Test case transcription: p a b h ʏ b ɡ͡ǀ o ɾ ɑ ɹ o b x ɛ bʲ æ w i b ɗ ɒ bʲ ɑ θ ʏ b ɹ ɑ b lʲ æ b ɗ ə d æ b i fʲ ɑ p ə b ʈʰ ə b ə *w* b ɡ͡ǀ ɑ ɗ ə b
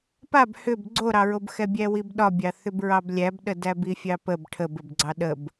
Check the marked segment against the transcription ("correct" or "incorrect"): incorrect